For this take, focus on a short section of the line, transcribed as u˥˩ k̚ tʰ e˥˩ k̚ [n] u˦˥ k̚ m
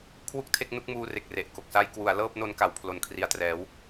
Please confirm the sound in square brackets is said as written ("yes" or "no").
yes